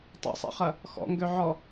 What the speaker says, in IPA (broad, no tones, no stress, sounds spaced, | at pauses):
tˤ ɛ̰ sˤ ḭ χ ɐ | x ɔ̰ ŋ ɡ ø ʕ ɔ